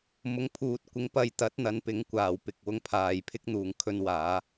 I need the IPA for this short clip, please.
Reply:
m ʊ˨˥ ŋ pʰ uː˨˥ t̚ kʷ ɪ˨˥ ŋ p ɐ˨˧ j t̪ ɐ˨˥ t̚ n̪ ɐ˨˧ n p ɪ˨˥ ŋ kʷ aː˨˩ w p ɪ˨ k̚ w ʊ˧ ŋ pʰ aː˨ j pʰ ɪ˥ k̚ n̪ uː˨˩ ŋ kʰ ɵ˧ n w aː˨˥

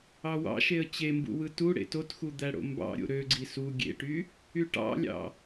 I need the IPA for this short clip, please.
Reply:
ɑ w ɑ̰ ʃ e ə̯ t͡ɕ e m b ṵ w ɯ t u ɽ ḛ t o t x u d̪ æ ɽ o̰ m b ɑ̰ ɾʲ o̰ ɾ ø ɡ͡ǀ i s u ɡʲ ḛ ʈ y | y ʈ ɑ̰ lʲ ɑ̰

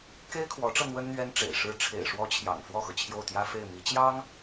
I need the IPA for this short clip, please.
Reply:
k e˥ ɪ̯ kʰ w ɔ˧˥ ʈ͡ʂ ɤ˧ n̪ w ə˥ n n̪ ɥ ɛ˥ n ʈ͡ʂ ḛ˨˩ ɪ̯ ʂ ɻ̩˥˩ ʈ͡ʂʰ ḛ˨˩ ɪ̯ ʂ w ɔ˧˥ t͡ɕʰ j ɑ̰˨˩ ŋ f w ɔ˥˩ x ɤ˩ t͡ɕʰ j o˥˩ ʊ̯ t̪ j ä˥ f e˥˩ ɪ̯ m i˧˥ t͡ɕ j ɑ˥ ŋ

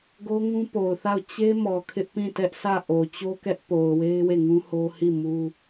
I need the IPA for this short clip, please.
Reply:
ɡ o˦ ŋ ũ˦ p o˨ ʊ̯ θ a˦˨ ʊ̯ t͡ɕ e˦ m ɔ˨ kʰ ɪ˦ ʔ p ĩ˦˨ t ɛ˦ ʔ s ä˦˨ ʔ o˨ t͡ɕ o˦ k ɛ˦ ʔ p o˨ ʊ̯ w e˦ ɪ̯ w e˦˨ ŋ ũ˦ h o˦ h i˦˨ m u˦

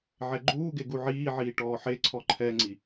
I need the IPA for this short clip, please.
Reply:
ʕ ɛ ɡ͡ǃ uː ɡ e ɡ u ʕ iː ʕ iː ʈ ɔː ħ e ǀʰ ɔ ǃʰ ɛ ŋ͡ǀ i

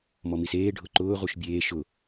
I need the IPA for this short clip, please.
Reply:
m ɔ m i s eː ɖʱ ʊ ǃ ʊː ʁ u ʃ bʲ eː ʃ ʊ

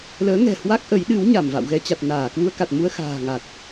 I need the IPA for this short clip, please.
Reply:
l əː˨˦ ŋ ɛ̤˨˩ h w a˦˥ k̚ ʔ ə˨˦ j ɗ ɨ˨˦ w ɲ a˧˩ m v a̰˧˨ w ɣ ɛ˧ t͡ɕ a˨˩ t̚ n aː˧˩ k w u˧ ə̯ k a˨˩ t̚ m u˧ ə̯ x a̤ː˨˩ ŋ a˨˩ t̚

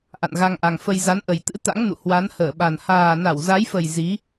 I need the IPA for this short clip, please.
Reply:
ʔ a̰˧˨ n ɣ a˧ ŋ ʔ a˨˩ ŋ f ə˧ j z a˨˦ n ʔ ə˨˩ j t̪ ɨ̰˧˥ t̪ a̰˧˥ ŋ n ṵ˧˨ h w a˨˦ n h əː˧˩ ɓ a˨˩ n h aː˨˩ n a˧˩ w z a˨˦ j f ə˨˩ j z i˨˦

